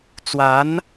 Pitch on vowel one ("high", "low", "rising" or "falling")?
rising